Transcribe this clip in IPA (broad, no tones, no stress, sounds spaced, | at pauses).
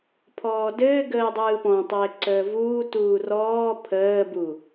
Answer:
pʰ ɔː d ɘː ɡ əː dˤ ɯː p ɔ̃ tˤ ɘː ǀ əː v uː t uː r ɔː pʰ əː b u